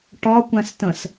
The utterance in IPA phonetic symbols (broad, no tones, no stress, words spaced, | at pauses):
ʈɒ kʷæ̃stə̃s